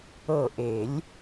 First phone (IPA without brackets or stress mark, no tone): ɤ